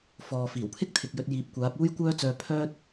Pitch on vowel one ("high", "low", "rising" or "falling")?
low